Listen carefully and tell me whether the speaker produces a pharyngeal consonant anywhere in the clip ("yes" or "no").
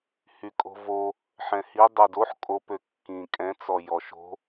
yes